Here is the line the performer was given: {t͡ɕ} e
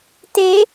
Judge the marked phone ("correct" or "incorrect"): incorrect